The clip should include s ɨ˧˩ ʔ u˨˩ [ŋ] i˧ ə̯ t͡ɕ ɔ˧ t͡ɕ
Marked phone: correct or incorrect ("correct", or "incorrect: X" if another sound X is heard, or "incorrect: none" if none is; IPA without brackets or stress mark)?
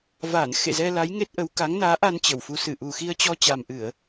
incorrect: x